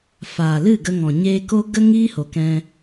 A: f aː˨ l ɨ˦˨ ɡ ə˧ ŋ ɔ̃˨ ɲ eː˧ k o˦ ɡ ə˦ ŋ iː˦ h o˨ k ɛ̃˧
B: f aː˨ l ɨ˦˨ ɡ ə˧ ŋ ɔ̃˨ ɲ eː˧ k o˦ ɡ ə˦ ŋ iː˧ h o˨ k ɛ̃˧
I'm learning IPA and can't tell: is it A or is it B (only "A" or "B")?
A